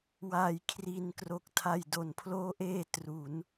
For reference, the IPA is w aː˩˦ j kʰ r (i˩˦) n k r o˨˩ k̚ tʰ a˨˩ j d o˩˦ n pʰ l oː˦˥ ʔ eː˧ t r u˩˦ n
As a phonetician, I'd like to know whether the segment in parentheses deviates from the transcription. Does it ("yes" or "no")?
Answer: yes